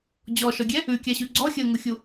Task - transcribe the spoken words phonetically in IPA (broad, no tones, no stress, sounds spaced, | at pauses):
d͡ʑ ɔ ʃ ɔ ɡʲ ɛ | ʉ kʲ a ɕ ʉ ɡ͡ǀ ɔ xʲ əː ŋ u xʲ u